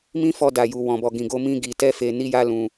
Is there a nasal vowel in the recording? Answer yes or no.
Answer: yes